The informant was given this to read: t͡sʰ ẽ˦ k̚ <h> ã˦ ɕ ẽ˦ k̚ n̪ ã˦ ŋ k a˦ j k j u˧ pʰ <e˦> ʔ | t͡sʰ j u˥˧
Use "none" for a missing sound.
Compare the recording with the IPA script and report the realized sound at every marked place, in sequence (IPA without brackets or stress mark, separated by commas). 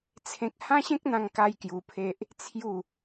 h, e˦